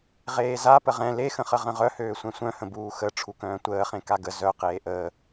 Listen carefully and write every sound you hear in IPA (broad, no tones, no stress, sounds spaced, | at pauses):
ʁ eː z a p ə ʁ ɛ̃ l e x ə̃ χ ə ʁ ə̃ ʁ œ h øː sʷ ɛ̃ sʷ œ̃ h ə̃ b uː x ə ʈ͡ʂʰ u k œ̃ː tʷ əː χ ẽ k a ɡ ə z œ q eː ʔ əː